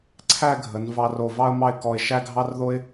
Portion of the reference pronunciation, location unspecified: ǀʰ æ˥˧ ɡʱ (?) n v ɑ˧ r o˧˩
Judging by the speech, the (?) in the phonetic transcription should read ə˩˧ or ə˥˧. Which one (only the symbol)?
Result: ə˩˧